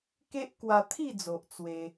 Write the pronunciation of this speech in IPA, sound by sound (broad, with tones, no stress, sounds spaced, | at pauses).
k e˦ ʔ k w a˧ t̪ʰ i˥˧ d͡z o˨ ʔ t͡s w e˧